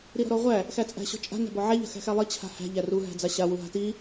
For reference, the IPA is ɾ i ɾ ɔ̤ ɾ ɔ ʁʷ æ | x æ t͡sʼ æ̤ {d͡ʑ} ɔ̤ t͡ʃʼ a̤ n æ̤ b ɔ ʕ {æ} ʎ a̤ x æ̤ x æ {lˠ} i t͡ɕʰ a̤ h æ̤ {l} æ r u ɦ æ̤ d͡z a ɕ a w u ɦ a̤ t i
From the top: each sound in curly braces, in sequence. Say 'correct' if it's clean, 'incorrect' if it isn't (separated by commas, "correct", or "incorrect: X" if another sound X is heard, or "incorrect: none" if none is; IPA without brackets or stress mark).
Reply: incorrect: ɕ, correct, correct, incorrect: ʎ